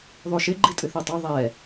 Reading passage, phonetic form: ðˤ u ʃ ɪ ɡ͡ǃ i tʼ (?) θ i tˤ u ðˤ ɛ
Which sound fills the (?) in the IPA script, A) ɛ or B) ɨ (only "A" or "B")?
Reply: B